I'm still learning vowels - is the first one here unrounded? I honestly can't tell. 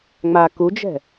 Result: yes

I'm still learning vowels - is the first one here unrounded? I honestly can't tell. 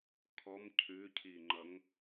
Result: no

